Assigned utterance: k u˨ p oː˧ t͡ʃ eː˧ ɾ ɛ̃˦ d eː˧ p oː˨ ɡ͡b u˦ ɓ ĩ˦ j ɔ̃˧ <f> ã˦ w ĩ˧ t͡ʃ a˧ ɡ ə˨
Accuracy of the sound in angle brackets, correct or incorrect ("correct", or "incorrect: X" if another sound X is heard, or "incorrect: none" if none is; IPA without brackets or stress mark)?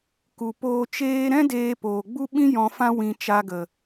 correct